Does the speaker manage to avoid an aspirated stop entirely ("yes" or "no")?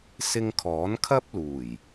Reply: no